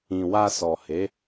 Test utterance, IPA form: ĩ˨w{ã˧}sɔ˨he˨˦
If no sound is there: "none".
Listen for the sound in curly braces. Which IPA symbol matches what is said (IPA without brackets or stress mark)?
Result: a˧